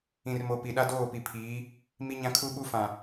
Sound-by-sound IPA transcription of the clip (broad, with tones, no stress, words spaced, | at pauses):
ĩ˨rmo˨ pi˨ɗa˦ doː˦˨pi˨pʰiː˨˦ | mi˦ɲã˦ kʰu˦ɓu˦fã˨